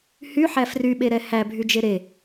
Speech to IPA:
hyħæ fryɓeɾɛ hæbʱyd͡ʒe ɾe

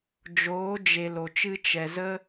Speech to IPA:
d͡ʒoː˨˦d͡ʒe˨ lo˨t͡ʃɨ˦ t͡ʃɛ˨ zə˧

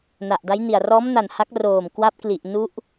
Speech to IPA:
na˨˩ʔda˦˥jni˨˩a̯ rɔː˦˥mna˨˩n ha˦˥k̚roː˨˩m kwa˦˥p̚ kli˨˩ʔ nu˦˥ʔ

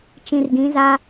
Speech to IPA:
t͡ʃĩ˨rɡĩ˨˦za˦

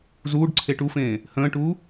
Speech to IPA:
zuːɖǀʰe ʈufẽː | hə̃ːʈuː

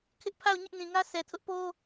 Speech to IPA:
kʰɪ˦ʔpʰa˦˨ʊ̯ ɲɪ˦ʔnĩ˨ŋä˦ sʰɛ˨tʰʊ˦ʔpo˦

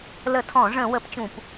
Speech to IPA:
lə˧˩˧tʰɔ̃˧˩˧ʐə̃˧˩˧ wə˧˩˧pt͡ɕũ˧˩˧p

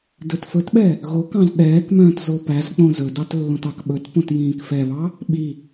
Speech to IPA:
dɵtfɵtɓɛ | ɣokɑ̃z ɗɛːkmœ̃ːt zopæzk͡põ zɵdɑt lːõtɑkɓɵtpõt jĩːkfɛβɑ | ɓi

